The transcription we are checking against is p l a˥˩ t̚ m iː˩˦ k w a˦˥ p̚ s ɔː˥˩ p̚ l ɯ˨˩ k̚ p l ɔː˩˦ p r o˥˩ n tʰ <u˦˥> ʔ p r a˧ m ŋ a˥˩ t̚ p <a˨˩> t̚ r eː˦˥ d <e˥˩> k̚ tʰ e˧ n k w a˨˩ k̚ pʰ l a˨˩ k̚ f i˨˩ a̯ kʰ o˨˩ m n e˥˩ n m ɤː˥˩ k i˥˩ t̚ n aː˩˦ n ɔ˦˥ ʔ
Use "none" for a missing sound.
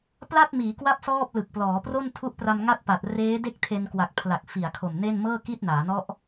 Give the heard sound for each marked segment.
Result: u˦˥, a˨˩, e˥˩

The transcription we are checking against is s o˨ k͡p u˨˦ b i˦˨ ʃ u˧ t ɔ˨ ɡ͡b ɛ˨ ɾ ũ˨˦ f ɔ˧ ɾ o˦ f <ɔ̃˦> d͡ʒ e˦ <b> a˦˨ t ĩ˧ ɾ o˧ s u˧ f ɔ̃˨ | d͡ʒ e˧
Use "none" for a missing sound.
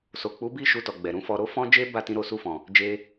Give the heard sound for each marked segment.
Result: ɔ̃˦, b

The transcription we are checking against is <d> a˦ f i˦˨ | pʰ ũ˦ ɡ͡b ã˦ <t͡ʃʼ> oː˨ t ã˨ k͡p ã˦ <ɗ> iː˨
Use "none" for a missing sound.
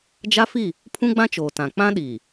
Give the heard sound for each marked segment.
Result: d͡ʒ, t͡ʃ, ɗ

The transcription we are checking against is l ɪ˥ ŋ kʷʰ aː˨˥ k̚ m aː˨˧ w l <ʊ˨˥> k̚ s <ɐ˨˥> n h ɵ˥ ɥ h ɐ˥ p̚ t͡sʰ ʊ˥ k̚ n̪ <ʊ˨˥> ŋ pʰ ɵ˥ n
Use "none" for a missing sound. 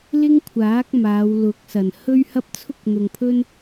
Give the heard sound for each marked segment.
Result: ʊ˨˥, ɐ˨˩, ʊ˨

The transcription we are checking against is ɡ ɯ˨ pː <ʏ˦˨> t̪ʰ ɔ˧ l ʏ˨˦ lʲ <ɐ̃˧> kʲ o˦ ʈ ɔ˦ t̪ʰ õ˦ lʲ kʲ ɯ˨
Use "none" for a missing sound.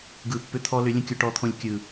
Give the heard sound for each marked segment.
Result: ʏ˧, ə̃˧

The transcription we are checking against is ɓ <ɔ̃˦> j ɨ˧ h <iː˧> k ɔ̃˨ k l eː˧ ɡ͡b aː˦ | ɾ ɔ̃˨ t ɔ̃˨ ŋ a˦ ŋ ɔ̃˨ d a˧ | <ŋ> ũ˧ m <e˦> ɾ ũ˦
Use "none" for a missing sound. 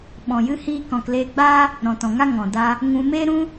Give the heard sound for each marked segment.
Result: ɔ̃˨, iː˧, ŋ, eː˦

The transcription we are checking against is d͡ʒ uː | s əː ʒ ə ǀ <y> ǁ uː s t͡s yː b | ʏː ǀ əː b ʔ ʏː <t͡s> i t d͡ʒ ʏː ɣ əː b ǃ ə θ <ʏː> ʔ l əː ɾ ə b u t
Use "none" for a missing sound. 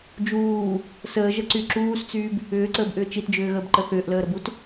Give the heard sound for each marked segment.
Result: y, t͡ʃ, ʏː

